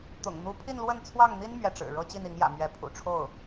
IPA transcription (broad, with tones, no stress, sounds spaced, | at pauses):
t̪ ʊ̰˨˩ ŋ n̪ u˧˥ pʰ i˥˧ n l w ə˥˧ n t͡sʰ w ɑ˥˩ ŋ n̪ i˥ n m ɥ ɛ˥˩ ʈ͡ʂ ɻ̩˨˩ ɻ ɤ˥ t͡ɕ i˥˩ n i˧˥ ŋ j ä̰˨˩ m ɥ ɛ˧˥ pʰ ṵ˨˩ ʈ͡ʂʰ o˥˩ ʊ̯